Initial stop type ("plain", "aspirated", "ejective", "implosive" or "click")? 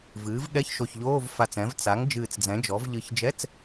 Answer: implosive